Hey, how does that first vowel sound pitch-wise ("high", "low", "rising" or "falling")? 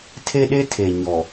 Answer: high